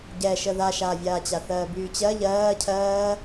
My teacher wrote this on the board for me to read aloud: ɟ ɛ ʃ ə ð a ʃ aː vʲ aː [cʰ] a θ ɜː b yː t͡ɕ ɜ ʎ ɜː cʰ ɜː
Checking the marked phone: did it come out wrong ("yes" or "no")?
yes